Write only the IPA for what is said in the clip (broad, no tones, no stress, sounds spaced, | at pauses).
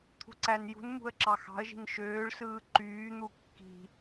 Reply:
t̪ʰ ṳ ǀ æ n j ṳ n m ṳ ə̯ ǁ ɑ x ɑ̤ ə̯ ʒ i̤ n ʃ øː ɭ s ɯː ǃ yː n̪ u kː i̤